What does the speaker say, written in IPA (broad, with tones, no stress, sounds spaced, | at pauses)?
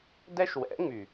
d ɛ˦ ʃ w ɛ̰˨˦ ŋ͡m y˨